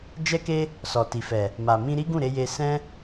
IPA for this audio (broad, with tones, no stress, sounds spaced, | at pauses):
d͡ʒ ɛ˧ k e˧ | s ɔ˨ t i˨ f ɛ˨ | m a˨ m ĩ˧ ɾ i˦ ɡ ũ˦˨ ɾ e˧ j e˧ s ɛ̃˦